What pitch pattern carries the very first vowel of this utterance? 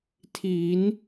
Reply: rising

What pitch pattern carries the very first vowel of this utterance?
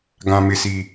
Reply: low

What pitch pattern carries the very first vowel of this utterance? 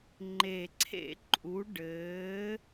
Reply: low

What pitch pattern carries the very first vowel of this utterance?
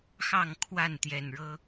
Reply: falling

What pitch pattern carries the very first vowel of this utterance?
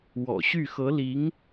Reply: low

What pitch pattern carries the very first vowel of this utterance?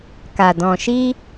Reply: low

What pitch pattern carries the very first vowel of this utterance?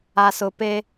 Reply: low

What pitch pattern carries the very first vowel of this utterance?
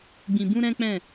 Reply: low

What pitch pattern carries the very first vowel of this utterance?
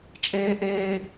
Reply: high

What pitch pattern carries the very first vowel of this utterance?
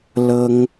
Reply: high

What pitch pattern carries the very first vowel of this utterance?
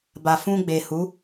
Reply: low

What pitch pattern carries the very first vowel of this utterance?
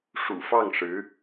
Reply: low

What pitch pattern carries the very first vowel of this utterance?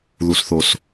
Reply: low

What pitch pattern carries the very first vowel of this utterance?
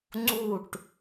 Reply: falling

